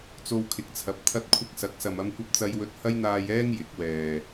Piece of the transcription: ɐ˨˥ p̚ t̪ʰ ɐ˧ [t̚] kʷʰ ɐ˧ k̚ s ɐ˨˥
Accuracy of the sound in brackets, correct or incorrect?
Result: correct